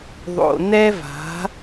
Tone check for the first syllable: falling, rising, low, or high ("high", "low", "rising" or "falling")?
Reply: low